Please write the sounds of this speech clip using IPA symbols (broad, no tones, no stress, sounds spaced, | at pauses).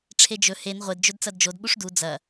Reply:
ʈ͡ʂʰ e d͡ʒ ɵ h e n ʁʷ e d d͡ʒ ɵ d t͡s ɐ d d͡ʒ o d ɓ u ʂ d u d͡z ɐ